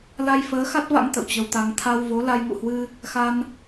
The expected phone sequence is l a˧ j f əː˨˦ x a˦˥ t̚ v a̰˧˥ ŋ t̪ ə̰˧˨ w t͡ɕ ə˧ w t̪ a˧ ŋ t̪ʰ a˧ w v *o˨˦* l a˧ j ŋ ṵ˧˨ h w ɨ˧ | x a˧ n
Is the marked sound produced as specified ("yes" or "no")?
yes